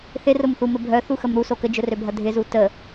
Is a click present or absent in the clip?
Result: absent